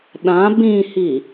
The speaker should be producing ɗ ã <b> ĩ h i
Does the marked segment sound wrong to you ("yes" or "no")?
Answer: no